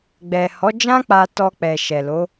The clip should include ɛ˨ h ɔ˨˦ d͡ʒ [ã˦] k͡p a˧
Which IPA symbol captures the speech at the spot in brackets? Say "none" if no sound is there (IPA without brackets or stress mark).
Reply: ã˦